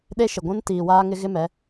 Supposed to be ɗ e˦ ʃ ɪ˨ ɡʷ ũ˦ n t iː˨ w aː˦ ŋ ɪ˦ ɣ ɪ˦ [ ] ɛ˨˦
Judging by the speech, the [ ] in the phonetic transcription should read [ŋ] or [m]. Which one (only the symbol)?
m